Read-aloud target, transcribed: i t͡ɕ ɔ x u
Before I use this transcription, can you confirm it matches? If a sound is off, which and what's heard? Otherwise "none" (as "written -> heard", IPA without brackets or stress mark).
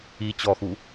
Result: none